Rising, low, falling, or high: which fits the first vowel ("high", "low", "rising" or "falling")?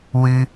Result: high